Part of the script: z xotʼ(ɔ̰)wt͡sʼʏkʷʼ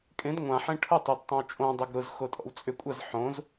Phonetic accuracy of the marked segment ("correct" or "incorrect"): correct